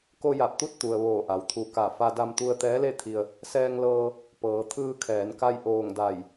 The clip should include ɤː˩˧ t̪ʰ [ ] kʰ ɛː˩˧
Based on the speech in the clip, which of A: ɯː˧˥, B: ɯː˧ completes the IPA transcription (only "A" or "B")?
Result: B